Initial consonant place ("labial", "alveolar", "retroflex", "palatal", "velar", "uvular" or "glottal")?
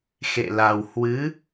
velar